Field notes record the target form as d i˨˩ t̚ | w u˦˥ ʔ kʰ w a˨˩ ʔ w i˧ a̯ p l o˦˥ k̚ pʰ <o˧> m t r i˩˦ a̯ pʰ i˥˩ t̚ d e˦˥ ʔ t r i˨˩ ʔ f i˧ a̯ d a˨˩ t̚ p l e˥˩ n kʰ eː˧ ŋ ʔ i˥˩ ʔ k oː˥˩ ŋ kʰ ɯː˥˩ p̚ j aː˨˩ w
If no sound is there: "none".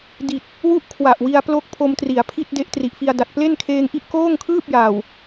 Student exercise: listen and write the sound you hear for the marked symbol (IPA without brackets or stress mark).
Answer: o˧